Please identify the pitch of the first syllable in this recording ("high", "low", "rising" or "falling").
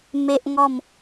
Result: high